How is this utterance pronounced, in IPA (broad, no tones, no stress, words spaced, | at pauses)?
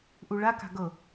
ʔuɭaka̤ ɡɤ